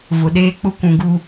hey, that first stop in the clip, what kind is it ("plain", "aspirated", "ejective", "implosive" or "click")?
implosive